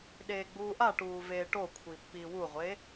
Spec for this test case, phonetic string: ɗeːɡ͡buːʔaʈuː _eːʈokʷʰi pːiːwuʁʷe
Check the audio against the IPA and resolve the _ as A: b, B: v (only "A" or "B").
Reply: B